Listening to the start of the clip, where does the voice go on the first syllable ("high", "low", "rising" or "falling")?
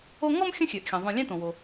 high